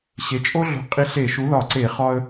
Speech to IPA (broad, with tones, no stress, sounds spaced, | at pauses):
ɕ e˩˥ t͡ʃʼ o˥ ɮ o̤˧˩ qʼ i˧ ɬ e˧˩˧ ʃ u˩˥ ð ɒ˧˩˧ ǀ e˧˩˧ χ ɒ˧ ə̯